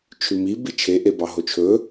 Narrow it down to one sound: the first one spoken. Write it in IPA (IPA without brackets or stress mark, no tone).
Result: t͡ʃʰ